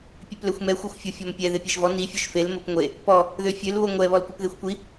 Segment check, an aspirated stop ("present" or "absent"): absent